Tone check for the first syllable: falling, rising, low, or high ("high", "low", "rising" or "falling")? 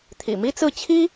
low